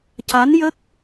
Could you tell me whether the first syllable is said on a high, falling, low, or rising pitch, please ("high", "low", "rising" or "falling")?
rising